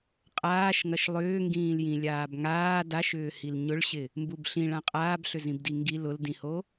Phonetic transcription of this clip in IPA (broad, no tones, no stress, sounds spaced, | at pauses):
qʼ aː ʃ ŋ ɐ ʃ lˠ ʏː ŋ ɡ ĩː l j ĩ lʲ aː b ŋ aː d a ʃ ʏː h i l ɲ ʊ ɭ ɕ ɪ | m b u b ɬ ĩ ɭ ã qʼ aː b ɬ ʏ z ĩ b d i ŋ ɡ i l ʊ l d ĩ h o